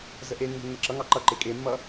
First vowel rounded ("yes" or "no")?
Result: no